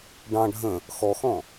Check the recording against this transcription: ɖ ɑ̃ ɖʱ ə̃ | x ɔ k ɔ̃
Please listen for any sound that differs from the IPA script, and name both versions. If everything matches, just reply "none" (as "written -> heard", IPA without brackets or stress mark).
k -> x